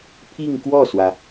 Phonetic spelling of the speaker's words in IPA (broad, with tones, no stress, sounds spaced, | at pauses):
pʰ i˥˧ ŋ k w ɔ˥˩ s w ä˩